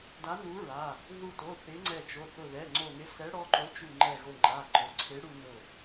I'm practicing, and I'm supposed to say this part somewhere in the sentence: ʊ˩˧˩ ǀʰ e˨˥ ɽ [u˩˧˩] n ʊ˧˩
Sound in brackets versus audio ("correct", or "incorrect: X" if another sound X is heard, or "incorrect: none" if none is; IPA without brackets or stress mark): incorrect: u˧